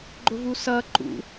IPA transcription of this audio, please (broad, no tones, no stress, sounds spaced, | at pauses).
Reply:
ɡ͡ǃ ʊ v u s ʌː ǃ ṵ